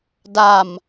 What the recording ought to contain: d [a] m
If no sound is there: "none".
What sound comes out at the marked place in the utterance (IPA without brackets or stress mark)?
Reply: a